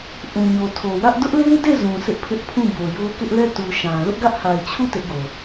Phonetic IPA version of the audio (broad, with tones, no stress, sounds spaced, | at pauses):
ʔ ũ˨ ɲ o˨ tʰ o˨ w ä˦ ʔ d ʊ˦ ʔ l e˦ ɪ̯ d e˦˨ z ũ˨ sʰ ɪ˦ ʔ pʰ ɪ˦ ʔ pʰ ũ˦˨ b o˨ j o˦ k ɪ˦ ʔ l ɛ˦˨ t u˨ ʃ ã˨ l ʊ˦ ʔ ɡ ä˦ ʔ h a˨ ɪ̯ t͡ɕʰ u˦˨ t ɪ˦ ʔ ɡ o˨